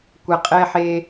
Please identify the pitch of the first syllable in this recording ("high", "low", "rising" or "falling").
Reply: low